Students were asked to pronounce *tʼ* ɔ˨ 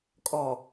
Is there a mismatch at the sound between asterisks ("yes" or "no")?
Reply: yes